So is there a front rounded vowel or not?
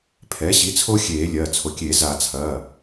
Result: no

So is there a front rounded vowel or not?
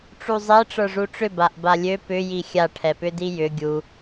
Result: yes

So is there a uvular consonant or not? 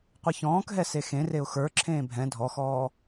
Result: yes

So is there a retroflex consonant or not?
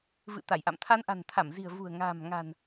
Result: no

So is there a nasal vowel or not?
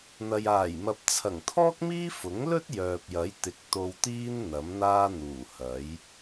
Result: no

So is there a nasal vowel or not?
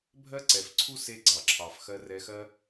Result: no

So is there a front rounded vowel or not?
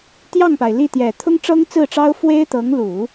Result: no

